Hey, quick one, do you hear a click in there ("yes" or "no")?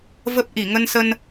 no